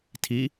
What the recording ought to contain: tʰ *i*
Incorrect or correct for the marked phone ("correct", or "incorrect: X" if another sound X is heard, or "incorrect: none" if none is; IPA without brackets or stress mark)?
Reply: correct